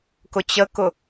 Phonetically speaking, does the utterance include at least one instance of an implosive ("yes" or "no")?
no